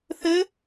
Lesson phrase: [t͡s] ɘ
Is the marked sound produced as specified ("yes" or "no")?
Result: no